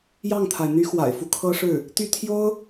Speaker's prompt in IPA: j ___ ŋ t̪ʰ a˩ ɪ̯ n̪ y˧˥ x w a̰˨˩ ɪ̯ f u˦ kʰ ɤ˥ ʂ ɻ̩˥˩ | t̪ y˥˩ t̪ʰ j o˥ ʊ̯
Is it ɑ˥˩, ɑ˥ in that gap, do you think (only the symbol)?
ɑ˥˩